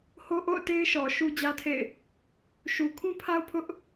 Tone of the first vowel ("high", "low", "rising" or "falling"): high